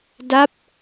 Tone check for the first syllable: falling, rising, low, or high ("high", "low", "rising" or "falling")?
falling